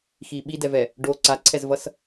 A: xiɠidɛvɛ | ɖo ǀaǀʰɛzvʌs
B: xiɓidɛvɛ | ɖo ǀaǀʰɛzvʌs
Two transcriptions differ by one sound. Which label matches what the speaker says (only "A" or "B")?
B